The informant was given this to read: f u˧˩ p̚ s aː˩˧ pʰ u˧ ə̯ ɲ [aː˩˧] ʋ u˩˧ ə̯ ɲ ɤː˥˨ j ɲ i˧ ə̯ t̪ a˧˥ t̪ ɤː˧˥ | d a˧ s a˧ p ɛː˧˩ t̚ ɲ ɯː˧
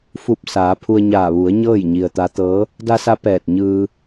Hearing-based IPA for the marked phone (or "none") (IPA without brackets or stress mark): aː˧˩